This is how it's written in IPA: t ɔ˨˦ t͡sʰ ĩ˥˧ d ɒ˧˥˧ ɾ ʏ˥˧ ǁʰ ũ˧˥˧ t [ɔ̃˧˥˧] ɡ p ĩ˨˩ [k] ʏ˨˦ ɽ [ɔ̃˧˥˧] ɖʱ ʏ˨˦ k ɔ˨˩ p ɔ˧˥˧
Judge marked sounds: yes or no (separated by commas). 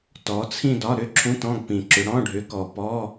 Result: yes, no, yes